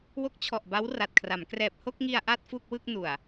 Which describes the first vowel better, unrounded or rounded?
rounded